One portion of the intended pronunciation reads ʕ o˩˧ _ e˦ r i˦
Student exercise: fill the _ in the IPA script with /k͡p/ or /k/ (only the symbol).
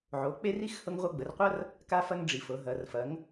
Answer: k͡p